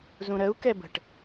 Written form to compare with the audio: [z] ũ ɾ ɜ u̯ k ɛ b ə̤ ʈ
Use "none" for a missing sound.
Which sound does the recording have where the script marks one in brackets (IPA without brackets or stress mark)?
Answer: z